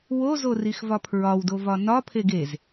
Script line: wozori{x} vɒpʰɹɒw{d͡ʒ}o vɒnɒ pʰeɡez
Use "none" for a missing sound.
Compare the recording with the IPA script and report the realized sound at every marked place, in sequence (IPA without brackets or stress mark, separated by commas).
x, d